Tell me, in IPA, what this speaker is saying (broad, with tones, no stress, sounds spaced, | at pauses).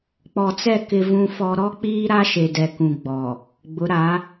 k͡p ɔ˨ t͡s ɛ˦˨ k ɪ˦ v ũ˦ f ɔ˦ ɾ ɔ˦ k͡p iː˦ ɾ a˦ ʃ e˨ d ɛ˨ k ũ˨ ɡ͡b ɔ˨ | ɡ͡b ʊ˨˦ ɾ a˨˦